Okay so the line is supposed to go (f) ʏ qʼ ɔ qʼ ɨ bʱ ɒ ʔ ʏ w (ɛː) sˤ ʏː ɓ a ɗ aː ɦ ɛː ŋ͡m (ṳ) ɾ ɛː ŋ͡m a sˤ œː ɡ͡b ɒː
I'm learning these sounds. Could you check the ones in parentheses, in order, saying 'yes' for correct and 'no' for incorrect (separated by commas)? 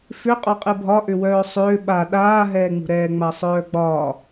yes, no, yes